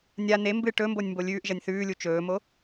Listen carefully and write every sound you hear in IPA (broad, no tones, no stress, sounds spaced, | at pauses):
nʲ a n e m b ɨ ʈ ɵ m b o nʲ m b o lʲ ʉː ʔ ʒ ɐ nʲ θ ʉː lʲ u t͡ʃ ɵː m o